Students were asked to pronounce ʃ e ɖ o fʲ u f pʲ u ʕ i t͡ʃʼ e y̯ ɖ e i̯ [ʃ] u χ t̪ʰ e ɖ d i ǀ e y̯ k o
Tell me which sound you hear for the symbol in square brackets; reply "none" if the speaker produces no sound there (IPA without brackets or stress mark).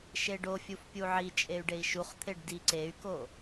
ʃ